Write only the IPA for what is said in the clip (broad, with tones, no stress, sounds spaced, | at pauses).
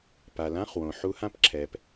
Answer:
p a˩ l ã˧˥˧ χ w õ˩ ħ u˧˥ h ã˥ p ǁʰ ɛː˩ p